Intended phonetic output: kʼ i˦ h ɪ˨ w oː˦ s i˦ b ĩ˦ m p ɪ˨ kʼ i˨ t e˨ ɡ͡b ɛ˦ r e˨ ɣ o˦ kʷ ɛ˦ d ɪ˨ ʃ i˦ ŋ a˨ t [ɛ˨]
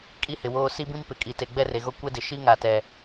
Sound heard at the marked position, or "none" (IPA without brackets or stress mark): ɛ˨